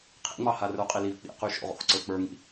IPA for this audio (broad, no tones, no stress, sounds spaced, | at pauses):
qʰ ḛ ŋ͡m ɑ h a r ə˞ qʼ i l i v k͡p ḭ q y ʃ o̰ ʁ o̰ x ǀ ə˞ k͡p ə˞ ŋ ḭ